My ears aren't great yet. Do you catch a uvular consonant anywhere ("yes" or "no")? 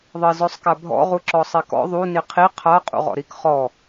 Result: yes